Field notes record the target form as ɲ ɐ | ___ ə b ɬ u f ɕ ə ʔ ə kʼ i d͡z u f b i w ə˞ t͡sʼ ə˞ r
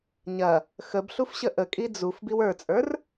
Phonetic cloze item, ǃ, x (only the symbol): x